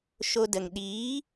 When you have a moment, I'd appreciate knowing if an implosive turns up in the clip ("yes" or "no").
yes